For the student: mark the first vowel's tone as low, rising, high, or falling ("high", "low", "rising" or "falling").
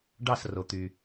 falling